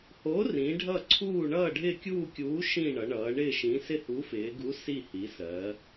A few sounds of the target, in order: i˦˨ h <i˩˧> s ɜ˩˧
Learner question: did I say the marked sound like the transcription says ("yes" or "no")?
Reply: yes